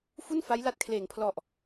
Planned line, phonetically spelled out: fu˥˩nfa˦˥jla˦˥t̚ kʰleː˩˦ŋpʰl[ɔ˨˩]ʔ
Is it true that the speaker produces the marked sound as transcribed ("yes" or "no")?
yes